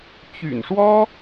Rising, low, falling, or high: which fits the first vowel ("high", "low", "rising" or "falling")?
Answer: low